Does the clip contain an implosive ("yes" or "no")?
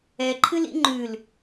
no